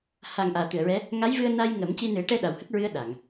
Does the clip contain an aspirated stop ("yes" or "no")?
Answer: no